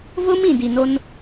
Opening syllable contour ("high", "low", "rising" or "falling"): high